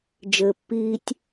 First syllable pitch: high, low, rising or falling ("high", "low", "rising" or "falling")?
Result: low